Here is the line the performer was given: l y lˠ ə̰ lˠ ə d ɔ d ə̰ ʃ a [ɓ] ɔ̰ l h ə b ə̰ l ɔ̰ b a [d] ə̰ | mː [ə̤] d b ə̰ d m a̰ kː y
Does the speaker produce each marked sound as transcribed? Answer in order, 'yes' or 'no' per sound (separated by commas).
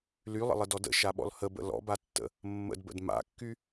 yes, no, no